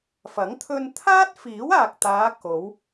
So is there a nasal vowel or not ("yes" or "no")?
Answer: no